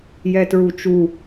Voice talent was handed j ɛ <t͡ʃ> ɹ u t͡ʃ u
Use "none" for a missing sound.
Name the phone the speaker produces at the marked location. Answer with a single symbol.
t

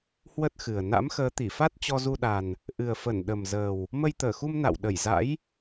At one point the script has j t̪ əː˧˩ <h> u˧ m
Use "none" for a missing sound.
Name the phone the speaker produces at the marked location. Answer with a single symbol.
x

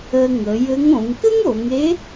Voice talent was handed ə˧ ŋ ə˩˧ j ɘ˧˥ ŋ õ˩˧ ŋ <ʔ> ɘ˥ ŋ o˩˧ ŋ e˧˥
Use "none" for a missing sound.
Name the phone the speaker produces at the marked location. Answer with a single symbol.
k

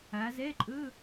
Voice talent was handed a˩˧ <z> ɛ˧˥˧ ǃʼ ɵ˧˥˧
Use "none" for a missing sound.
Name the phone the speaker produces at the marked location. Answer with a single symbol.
z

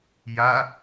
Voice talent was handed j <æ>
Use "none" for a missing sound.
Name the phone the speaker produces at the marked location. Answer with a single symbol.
a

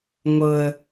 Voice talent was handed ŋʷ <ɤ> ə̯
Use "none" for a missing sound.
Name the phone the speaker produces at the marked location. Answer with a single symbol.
ɤ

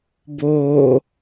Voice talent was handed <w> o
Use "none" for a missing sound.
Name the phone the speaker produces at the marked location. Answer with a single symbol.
b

